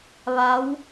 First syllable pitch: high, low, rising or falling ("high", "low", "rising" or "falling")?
rising